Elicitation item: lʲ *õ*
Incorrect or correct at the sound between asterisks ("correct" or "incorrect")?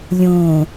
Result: correct